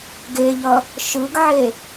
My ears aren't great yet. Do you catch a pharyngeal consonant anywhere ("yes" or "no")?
yes